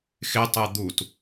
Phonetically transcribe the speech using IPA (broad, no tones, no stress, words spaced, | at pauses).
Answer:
xɪtˤɛ d̪ut